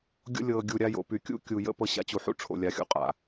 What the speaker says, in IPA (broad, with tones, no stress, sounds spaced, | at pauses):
ɡʲ o̰˧ lʲ ɤː˨ ɡʲ u˨ ɾʲ a˧ j o̰˨ p y˨ kʲ ṵ˦ kʲ u˨ j ə̰˧ p ɤ˧ ɕ a̰˦ t͡ɕ u˨ ħ ṵ˦ ʈ͡ʂʰ o̰˨ lʲ a˨ xʲ ṵ˨ qʼ a̰˨